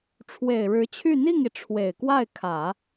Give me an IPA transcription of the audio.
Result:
ʈ͡ʂʰ w e˨˩ ɪ̯ ɻ ɻ̩˧˥ t͡ɕʰ y˥˧ n̪ i˥˩ ŋ i˩ ʈ͡ʂʰ w e˨˩ ɪ̯ k w a˥˩ ɪ̯ kʰ ä˨˩˦

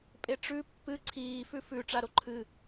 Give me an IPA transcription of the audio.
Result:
pʼ e ʈ͡ʂ ʉ pː ɨ ǀʰ iː f ʉ f ʉ ʈ͡ʂ a ɾ o ǃʰ ɨ

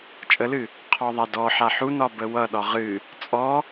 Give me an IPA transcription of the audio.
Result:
t͡ʃʼ ə l ɨ | qʰ ɔ ðˤ a d ɔ ħ a ħ u n ɒ b ə w ʌ ɗ ɒ ʁ ɨ | t͡sʼ ɔ

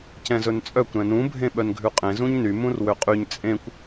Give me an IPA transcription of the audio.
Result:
c ɛ̃ z ɵ n t͡sʼ œ kʷ ɾ ɛ̃ n ũ bʱ ẽ ɓ œ n ɡʱ ʉ qʼ ẽ z ũ ɲ n y m ũ r w ø qʼ y ɲ t͡sʼ ẽ kʷ

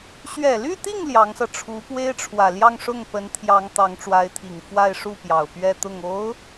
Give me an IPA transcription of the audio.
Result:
ɕ ɥ ɛ˨˩ l y˥˧ t̪ i˥˩ ŋ l j ɑ˧˥ ŋ s ɤ˧ ʈ͡ʂʰ u˧˥ p w e˥ ɪ̯ ʈ͡ʂʰ w ä˨˩ l j ɑ˥˧ ŋ ʂ ʊ˥˩ ŋ p ə˧˥ n t̪ʰ j ɑ˧˥ ŋ t̪ ɑ˧˥ ŋ ʈ͡ʂ w a˧˥ ɪ̯ t̪ʰ i˨˩ ŋ f w a˥˧ ɪ̯ ʂ u˥˩ p j ɑ˨˩ ʊ̯ p ɥ ɛ˥˧ t̪ ʊ˥˩ ŋ o˧˥ ʊ̯

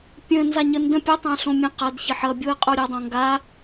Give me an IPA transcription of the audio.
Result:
pʲ ə̃ n z a ɲ ə n d ə̃ pʲ ə tˤ ã ɬ õ mʲ ə̃ q a d ç ə ħ ʌ bʲ o ə̯ qʼ o ɾʲ ʌ dˤ õ ŋ ɡ a

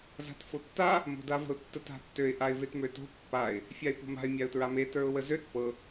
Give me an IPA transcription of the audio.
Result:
z a̤ t f o tː a | m o̤ d a v ə̤ ʊ̯ tː ə t a̤ tː ø ɪ̯ ʔ a ɪ̯ v e t m ø t o̤ pː a ɪ̯ | fʲ a ɪ̯ p o̤ m a̤ ɪ̯ mʲ a ʊ̯ t ɹ a m e t ə˞ ʊ̯ w ə z ø t p ɤ

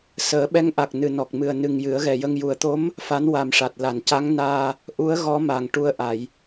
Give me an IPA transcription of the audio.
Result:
s əː˨˩˦ ɓ ɛ˧˥ ŋ ʔ a˨˩ k̚ n ɨ˨˩ n ɔ˨˩ k̚ m ɨ˨˩ ə̯ n ɨ˨˩ ŋ j ɨ˨˩˦ ə̯ ɣ ɛ˨˩ j ə˧ ŋ j u˨˩ ə̯ t̪ o˧˥ m | f a˧˥ n w a˨˩ m ʂ a˨˩ t̚ l a˨˩˨ n c a˧˥ ŋ n aː˧ | ʔ u˧˥ ə̯ ɣ ɔ˧˥ m a˨˩ ŋ ʈ u˧ ə̯ ʔ a˨˩˨ j

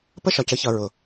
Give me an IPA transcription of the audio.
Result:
p ə˦ ʃ ɒ˨ c ə˦ ç ʌ˨ ɹ ʊ˨

